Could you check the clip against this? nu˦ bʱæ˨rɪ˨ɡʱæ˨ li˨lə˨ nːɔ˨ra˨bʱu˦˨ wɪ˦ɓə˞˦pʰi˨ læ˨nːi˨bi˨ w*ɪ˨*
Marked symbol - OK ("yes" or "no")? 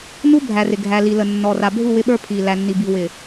yes